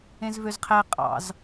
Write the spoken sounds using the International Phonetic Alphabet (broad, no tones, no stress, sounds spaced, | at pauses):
ẽ z v ø z qʰ æ qʼ ɑ̰ z